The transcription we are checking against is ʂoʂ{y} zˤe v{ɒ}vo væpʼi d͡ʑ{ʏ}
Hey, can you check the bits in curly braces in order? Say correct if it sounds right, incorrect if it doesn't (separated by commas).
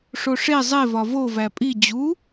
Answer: incorrect, correct, incorrect